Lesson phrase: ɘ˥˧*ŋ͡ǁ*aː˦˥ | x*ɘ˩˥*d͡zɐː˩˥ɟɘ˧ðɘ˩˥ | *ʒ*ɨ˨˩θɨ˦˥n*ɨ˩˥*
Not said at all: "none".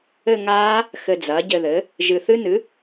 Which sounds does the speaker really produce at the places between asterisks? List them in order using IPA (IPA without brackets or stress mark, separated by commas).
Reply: ŋ, ɘ˧, ʒ, ɨ˩˥